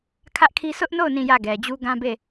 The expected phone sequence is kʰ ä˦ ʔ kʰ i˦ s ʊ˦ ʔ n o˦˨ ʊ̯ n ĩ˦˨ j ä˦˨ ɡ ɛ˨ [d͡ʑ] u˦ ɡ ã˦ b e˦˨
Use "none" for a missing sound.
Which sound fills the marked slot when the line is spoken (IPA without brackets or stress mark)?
d͡ʑ